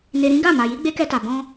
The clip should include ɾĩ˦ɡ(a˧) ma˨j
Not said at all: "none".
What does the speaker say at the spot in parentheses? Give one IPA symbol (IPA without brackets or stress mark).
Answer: a˦˨